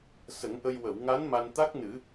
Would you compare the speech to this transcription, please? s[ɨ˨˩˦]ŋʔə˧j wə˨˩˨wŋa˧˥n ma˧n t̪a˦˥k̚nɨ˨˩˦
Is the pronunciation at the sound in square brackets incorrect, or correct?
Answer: incorrect